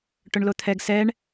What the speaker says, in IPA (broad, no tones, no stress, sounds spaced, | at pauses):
ʈ ʊ ɳ l o t̪ʰ ɛ ɡ s ɛ ɳ